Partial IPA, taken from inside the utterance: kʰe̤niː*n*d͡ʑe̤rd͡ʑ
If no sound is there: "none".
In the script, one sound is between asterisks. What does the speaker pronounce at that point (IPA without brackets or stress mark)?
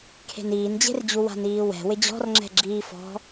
n